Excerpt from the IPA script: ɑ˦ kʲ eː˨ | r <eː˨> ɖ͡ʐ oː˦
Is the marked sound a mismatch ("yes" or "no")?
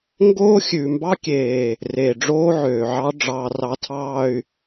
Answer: no